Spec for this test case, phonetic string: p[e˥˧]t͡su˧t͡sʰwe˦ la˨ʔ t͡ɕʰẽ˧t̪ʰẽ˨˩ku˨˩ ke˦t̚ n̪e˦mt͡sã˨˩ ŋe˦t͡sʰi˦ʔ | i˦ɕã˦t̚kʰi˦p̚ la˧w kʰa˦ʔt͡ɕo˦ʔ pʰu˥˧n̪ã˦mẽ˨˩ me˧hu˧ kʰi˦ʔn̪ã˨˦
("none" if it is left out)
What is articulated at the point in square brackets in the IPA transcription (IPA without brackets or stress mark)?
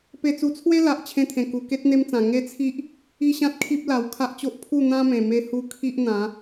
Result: e˧